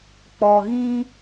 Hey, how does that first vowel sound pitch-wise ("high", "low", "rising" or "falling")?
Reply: low